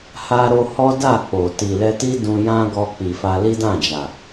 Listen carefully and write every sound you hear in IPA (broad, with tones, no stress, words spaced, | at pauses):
ha˦ɾo˦ hɔ˦da˦˨ k͡po˨ ti˨lɛ˧ti˦ dũ˧jã˦ ɡɔ˧k͡pi˨fa˧li˦ dã˦˨d͡ʒa˨